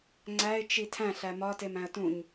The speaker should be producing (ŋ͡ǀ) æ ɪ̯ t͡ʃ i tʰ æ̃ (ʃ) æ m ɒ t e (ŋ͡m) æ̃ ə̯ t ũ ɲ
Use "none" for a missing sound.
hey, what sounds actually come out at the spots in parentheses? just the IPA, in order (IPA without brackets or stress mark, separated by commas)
ŋ͡ǀ, ɬ, m